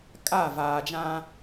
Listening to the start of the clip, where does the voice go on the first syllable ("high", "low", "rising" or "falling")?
falling